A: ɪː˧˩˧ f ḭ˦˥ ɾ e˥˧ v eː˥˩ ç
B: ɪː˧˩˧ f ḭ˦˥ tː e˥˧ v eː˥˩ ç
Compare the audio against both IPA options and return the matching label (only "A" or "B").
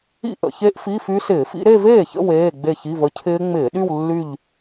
A